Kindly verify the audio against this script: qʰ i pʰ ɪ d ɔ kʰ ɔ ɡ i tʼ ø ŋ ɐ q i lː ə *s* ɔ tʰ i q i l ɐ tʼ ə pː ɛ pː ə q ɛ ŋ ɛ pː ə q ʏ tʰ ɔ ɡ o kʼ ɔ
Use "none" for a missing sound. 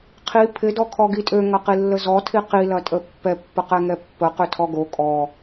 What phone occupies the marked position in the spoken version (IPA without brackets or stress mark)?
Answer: z